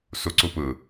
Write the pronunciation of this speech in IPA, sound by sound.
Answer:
s u ǀ u p ɯ

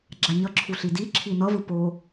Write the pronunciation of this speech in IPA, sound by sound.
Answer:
ɡ͡ǁ a ɲ ʌ ǁʰ u ɬ i d i ǁʰ i n ʌ v ɯ p o

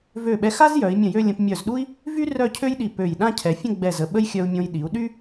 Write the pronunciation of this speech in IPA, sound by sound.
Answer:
v ø˧˩ ɓ ɛ˧ x a˥ z j œ˩˧ i̯ mʲ ə̃˧˩ j ø˥˧ lʲ ə̃˧ p mʲ œ˧˩ z ɗ u˥ i̯ | v y˥ r œ˥˧ cʰ ø˥ j ɗ i˧˩ p ø˧˩ j ɗ ã˥˧ cʰ ɛ˩˧ fʲ ə̃˥˧ ɡ͡b ɛ˧˩ z ə˧˩ ɓ ə˥ j xʲ œ˧ u̯ mʲ õ˧ j ɗ i˩˧ u̯ ɗ y˥

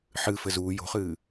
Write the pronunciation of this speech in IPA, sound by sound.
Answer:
ħ ɨ f ɘ z uː j o̤ χ ɨː

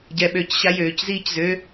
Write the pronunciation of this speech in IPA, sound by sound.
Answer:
ɟ ɛ ɓ ø c ɕ a j øː c z iː c z ø

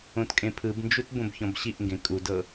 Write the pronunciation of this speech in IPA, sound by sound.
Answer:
õ t kʼ ẽ pʰ ɯ b n d͡ʒ u t b õ b ç ɔ̃ b ɕ i ʔ ŋ ɡ ẽ kʼ u d ɤ

